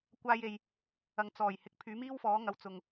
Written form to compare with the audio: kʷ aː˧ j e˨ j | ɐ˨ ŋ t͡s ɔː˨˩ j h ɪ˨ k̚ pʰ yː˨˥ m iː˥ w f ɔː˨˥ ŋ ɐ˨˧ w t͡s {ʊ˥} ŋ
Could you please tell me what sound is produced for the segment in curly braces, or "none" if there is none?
ʊ˨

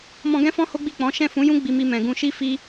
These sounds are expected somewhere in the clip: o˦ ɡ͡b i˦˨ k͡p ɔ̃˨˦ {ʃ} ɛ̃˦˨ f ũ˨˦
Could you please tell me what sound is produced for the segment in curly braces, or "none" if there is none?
ʃ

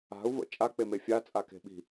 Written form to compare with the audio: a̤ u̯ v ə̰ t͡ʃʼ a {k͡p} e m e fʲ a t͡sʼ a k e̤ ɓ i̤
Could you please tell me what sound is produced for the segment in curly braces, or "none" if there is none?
k͡p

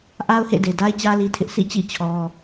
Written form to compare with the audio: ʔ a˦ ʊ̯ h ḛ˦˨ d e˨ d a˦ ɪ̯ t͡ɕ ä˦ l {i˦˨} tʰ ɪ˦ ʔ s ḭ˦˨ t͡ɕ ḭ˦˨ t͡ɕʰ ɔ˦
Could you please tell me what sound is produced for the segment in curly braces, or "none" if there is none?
i˦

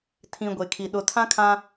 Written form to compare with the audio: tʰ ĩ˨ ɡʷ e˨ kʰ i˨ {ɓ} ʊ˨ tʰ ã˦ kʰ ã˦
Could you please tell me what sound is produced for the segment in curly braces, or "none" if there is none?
ɗ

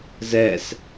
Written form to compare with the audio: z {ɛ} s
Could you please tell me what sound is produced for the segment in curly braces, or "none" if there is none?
ɛ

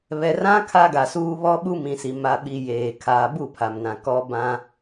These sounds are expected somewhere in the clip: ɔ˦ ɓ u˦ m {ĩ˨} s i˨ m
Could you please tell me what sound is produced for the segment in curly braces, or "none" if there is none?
ĩ˨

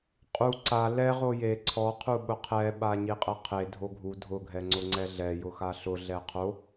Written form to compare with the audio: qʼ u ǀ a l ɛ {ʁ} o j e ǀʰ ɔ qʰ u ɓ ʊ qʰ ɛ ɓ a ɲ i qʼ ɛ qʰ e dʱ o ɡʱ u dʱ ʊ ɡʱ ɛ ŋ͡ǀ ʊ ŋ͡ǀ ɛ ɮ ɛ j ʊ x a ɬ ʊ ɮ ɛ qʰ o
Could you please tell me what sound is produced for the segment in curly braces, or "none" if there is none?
ʁ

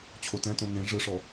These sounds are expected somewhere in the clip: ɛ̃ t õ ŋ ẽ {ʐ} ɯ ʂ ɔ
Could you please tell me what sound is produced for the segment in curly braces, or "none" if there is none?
ʐ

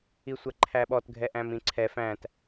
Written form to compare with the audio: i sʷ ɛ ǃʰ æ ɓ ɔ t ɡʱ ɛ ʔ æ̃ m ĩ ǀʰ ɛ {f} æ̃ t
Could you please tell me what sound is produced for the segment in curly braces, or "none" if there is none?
f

